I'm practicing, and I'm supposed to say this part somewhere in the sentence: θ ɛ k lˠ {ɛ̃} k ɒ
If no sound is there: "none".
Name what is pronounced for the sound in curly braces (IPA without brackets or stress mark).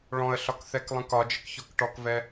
ə̃